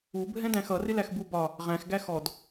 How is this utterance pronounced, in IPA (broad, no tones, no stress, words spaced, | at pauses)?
ubʱɛ̃dæ̃x ʌrɪlæxbu bɒ | ʁæ̃xɡæ xɔd